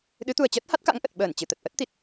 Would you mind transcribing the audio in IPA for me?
ɗ ɨ˨˦ t̪ u˨˩ ə̯ t͡ɕ əː˦˥ t̚ h a˦˥ t̚ k a̰˧˥ ŋ ʔ ə˨˩ t̚ ɓ əː˧˩ n t͡ɕ ɨ˧˩ t̪ ə˨˩ t̚ ʔ ə˦˥ t̚ t̪ i˨˩ t̚

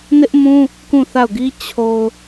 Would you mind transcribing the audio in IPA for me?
n ɪ˦ ʔ m ũ˦ | k ũ˦˨ θ a˦˨ ʊ̯ ɡ i˦ t͡ɕʰ o˨ ʊ̯

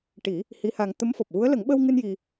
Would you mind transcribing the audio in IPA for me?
ʈ i˨˩˦ | h i˧˥ h a˧ ŋ t̪ ə˧˥ m f ɔ˨˩ p̚ ɣ u˧˥ ə̯ l ə˨˩˦ ŋ ɓ ə˧ w ŋ ɨ˧ n j i˧

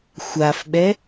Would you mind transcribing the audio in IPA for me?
xʷ a f ɓ ɛ

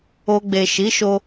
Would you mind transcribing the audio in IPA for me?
o˧ ɡ͡b e˨ ʃ i˨˦ ʃ o˧

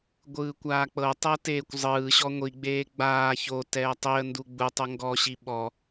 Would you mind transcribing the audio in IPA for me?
ɡʷ ɯː kʷ aː k͡p ɤ tˤ ɤ t eː kʷ zˤ ɯː ɕ ɔ ŋʷ i ɡ͡b eː ɡ͡b aː ç o t ɛː tˤ i ə̯ n d u ɡ͡b u tˤ o ŋ ɡ ɔ ɕ i ɓ ɔ

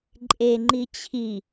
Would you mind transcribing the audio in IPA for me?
ǃʼ e ŋ͡ǃ i t͡ɕʰ i

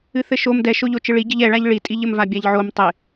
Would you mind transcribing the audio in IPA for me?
ɨ θ ɘ ʃ o m d ɛ ʃ o ʎ o t͡ʃ ɨ ɭ i ɟ ɘ ʎ ɛ ɭ a ʎ ɭ i tʼ i ʎ ɘ m v a bʲ a ʎ ʕ o m tˤ ɪ

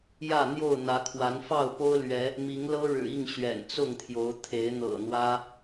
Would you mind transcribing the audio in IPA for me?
j ä˥˨ n̪ j o˥˨ ʊ̯ n̪ ä˨˦ kʰ w a˨˦ n f ɑ˥˨ ʊ̯ p o˦ ʊ̯ l ɥ ɛ˨˦ | m i˨˦ ŋ l ɤ˦ ɻ ɻ̩˨˩ i˥˨ ŋ ɕ ɥ ɛ̰˨˩ n t͡s ʊ˥˨ ŋ t̪ʰ j o˨˦ ʊ̯ t̪ʰ e˨˦ ɪ̯ n̪ ɤ̰˨˩ n̪ w ä˦

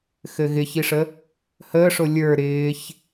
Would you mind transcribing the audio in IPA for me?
x ɘ ɣ ɪ ç i ʂ ə | h əː ʂ o lʲ ə˞ ɾ ɪː ç

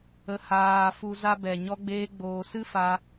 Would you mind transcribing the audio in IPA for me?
ə˨ h aː˨ f u˧ z a˦ b ɛ˨ ɲ ɔ˧ ɡ͡b eː˧ ɡ͡b oː˨ s ɨ˦ f a˧

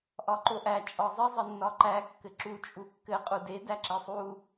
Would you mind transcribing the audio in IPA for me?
ʔ ɒ ǃ o ʔ æ t͡ʃʼ ɒ zˤ ɘ zˤ ɘ nː ɒ ǃ æ kː ɘ ǁ u t͡ʃʼ u kː ɘ qʼ u d e d æ ǁ e sˤ u

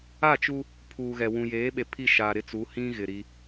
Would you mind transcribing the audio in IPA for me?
a˦˨ t͡ʃ u˦ | pʰ uː˨ ɣ ɛ˨ w ũ˨ j eː˨˦ ɓ e˨ pʰ i˦˨ ʃ a˨ ɾ ɪ˦ t͡s u˨˦ h ĩ˦ ɣ ɪ˨ ɾ i˦

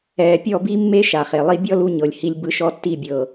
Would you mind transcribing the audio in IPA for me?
ɛː˧ pʲ ɔ˦˨ b i˦ mː e˦ ʃ a˨ χ e˨ lˠ i˦ bʲ ɔ˦ l u˧ ɲ ɤ˨ lʲ h i˧ lʲ b ɯ˧ ʃ ɔ˦˨ tː i˦˨ bʲ ɤː˨

